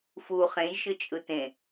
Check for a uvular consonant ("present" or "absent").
present